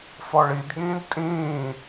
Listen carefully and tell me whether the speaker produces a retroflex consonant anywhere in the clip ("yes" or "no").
yes